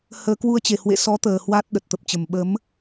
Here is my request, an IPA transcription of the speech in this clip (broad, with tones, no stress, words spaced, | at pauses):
həː˧ kwu˧ə̯t͡ɕe˨˩ hwḛ˧˨sɔ˨˦t̪əː˨˩ hwa˦˥t̚ɗə˨˩t̚t̪ə˨˩p̚t͡ɕə˨˩m ɓə˨˦m